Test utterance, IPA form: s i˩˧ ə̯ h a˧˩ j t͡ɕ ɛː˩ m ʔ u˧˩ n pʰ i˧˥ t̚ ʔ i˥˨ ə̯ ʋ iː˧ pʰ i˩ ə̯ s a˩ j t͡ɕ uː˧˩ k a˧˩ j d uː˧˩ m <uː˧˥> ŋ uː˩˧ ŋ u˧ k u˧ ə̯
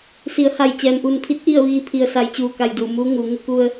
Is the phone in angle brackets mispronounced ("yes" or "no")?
no